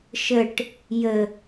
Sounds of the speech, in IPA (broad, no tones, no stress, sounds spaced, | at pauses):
ʃ ə ʈ | j ə